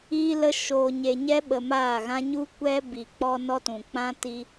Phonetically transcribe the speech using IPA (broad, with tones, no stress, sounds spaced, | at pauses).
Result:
iː˦ l ə˦ ʃ oː˧ ɲ e˧ ɲ ɛ˦ ɓ ə˧ m aː˦˨ ɣ ã˦ ɲ u˦ kʷ ɛ˦ b i˨ k͡p ɔ˧ n ɔ˦ t ũ˨ k͡p ã˦ t i˧